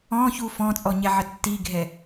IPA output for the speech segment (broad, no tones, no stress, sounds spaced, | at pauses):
ɔ̃ ç u f ɔ̃ t͡sʼ ɔ ɲ ɛ ʕ ə tː i ɡʱ ɛ